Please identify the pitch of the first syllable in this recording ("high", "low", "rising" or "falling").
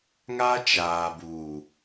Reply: high